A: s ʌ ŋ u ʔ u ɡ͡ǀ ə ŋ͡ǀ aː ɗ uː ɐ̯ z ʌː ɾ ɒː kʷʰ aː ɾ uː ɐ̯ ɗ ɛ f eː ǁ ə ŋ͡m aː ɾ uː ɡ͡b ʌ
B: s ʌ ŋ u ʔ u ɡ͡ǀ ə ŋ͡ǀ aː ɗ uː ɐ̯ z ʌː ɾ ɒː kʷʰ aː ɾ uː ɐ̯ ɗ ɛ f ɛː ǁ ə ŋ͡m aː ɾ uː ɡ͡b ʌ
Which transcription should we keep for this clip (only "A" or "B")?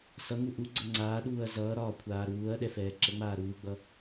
B